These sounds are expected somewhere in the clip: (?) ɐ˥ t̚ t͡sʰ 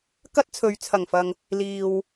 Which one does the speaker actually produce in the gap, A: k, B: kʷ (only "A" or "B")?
A